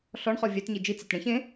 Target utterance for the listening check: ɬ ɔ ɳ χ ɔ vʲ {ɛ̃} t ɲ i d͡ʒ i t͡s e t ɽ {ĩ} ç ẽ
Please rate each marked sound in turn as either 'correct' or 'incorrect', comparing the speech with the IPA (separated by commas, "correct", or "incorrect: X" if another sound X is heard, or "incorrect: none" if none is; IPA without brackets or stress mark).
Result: incorrect: ɛ, incorrect: ẽ